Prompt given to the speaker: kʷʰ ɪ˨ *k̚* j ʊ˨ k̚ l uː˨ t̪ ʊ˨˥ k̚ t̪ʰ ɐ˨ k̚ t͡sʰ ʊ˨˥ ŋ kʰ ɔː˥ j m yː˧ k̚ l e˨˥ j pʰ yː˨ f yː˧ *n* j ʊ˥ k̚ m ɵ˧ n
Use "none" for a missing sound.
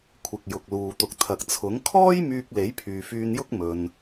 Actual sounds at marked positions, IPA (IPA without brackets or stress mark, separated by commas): k̚, n